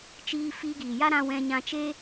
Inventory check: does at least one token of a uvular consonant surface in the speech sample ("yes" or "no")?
no